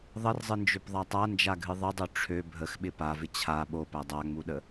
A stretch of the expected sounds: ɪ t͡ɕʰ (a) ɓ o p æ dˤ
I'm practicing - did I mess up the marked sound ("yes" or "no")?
no